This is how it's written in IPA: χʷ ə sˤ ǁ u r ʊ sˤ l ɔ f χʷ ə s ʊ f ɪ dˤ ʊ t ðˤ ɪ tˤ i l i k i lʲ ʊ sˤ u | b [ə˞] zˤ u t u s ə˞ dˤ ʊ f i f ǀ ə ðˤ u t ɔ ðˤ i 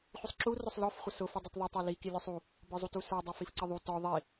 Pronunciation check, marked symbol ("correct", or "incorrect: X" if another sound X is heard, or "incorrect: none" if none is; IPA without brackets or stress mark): correct